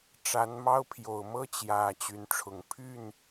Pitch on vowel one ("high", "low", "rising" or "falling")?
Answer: rising